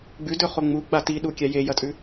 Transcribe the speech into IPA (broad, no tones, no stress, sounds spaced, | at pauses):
ɡ͡b ʉ d ɵ χ o ŋ͡m u ɡ͡b a t i ɗ u kʲ a j e j ɐ tʼ ʉ